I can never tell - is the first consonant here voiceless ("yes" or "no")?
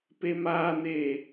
yes